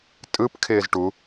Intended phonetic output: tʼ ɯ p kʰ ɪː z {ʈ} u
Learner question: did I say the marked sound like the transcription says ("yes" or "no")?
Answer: yes